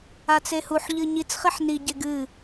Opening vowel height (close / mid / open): open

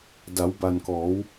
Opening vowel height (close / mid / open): open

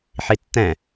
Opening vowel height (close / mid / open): close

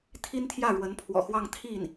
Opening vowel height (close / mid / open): close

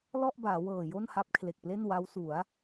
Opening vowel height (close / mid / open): mid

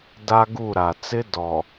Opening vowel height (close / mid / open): open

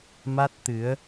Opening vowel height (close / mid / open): open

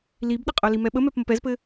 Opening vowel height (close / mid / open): close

